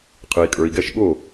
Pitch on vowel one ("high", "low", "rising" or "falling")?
low